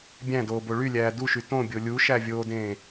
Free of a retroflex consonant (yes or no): no